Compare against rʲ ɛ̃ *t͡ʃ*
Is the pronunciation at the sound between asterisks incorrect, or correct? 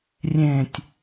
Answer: incorrect